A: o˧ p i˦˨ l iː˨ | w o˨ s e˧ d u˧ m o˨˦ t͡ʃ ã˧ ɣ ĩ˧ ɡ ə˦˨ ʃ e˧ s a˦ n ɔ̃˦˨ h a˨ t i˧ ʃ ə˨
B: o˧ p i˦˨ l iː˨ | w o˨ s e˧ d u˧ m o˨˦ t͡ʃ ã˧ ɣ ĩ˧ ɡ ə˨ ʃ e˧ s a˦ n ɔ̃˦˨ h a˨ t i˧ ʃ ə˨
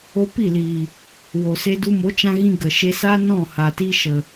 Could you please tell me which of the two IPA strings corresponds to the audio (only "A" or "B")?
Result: B